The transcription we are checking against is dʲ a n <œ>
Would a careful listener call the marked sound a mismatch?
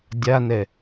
yes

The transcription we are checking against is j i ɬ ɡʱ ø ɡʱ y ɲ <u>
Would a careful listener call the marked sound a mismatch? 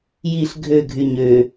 yes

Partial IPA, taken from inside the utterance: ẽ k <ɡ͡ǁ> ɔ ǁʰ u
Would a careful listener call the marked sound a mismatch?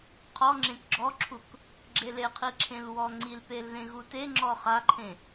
no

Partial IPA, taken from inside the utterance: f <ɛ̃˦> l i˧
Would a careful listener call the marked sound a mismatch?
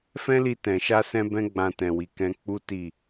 no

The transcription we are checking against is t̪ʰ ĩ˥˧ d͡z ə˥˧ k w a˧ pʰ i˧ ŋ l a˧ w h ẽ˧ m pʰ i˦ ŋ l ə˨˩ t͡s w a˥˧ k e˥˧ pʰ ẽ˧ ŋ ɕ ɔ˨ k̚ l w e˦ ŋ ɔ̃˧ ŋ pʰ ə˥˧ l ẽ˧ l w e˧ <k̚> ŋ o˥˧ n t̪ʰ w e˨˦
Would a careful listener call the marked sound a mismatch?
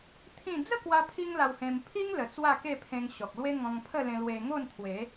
yes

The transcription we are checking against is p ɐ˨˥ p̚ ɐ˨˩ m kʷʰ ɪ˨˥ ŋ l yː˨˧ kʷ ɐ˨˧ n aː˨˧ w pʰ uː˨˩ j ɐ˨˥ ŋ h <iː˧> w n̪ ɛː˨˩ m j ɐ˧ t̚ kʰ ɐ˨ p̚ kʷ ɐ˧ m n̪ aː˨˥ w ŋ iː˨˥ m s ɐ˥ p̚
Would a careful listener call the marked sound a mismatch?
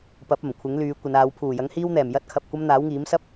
no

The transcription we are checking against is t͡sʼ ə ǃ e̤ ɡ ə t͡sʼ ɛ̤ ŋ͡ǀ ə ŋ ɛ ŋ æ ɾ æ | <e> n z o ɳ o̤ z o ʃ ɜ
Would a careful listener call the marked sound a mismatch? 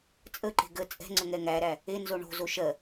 no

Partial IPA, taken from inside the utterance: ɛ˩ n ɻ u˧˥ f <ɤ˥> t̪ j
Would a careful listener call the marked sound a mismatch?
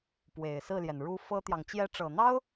no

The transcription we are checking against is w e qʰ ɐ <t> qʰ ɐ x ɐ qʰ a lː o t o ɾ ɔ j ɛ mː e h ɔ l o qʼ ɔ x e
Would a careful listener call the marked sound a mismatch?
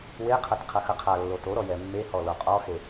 no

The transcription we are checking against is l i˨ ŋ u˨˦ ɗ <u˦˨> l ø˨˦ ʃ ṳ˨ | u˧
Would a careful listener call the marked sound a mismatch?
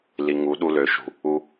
yes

